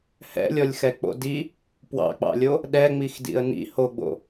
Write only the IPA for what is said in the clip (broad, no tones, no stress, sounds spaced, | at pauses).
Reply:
h ɛ̰ lʲ ɔ lʲ x ɛ k͡p o̰ d i | p w ɑ̰ k͡p ɑ̰ lʲ o | ɗ ɛ ŋ͡m i x d ḭ ə̯ n ḭ h o ɡ͡b o̰